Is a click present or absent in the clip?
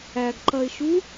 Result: present